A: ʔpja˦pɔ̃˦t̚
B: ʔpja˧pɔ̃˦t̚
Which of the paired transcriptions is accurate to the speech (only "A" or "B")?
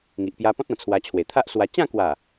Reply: B